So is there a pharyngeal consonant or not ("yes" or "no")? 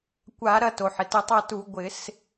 yes